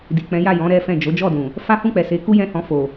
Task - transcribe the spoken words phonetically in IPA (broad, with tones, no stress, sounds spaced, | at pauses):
d i˨ k͡p ɛ̃˨˦ j a˦˨ j ɔ̃˨˦ ɾ ɛ˦ f ɛ̃˦˨ d͡ʒ o˨˦ d͡ʒ ɔ˦˨ d ũ˨ | f a˦ h ũ˦˨ k͡p ɛ˨ s e˨˦ k u˦ j ɛ̃˦˨ h ɔ̃˧ f o˨